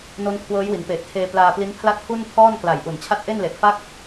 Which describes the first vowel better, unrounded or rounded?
rounded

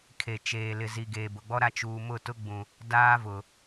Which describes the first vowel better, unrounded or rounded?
unrounded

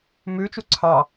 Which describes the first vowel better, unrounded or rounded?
rounded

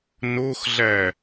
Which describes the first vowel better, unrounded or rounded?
rounded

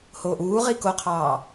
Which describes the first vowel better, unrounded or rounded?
rounded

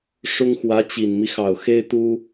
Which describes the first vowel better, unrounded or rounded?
rounded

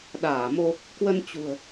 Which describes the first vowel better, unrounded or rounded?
unrounded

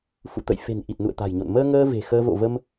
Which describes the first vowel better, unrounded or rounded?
rounded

